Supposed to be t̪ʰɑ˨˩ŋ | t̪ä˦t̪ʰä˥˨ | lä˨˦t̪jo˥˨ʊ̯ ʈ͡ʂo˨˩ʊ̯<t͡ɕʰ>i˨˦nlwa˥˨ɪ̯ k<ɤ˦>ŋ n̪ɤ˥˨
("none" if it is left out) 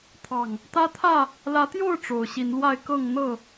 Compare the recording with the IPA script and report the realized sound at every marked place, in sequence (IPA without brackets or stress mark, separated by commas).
ɕ, ɤ˥˨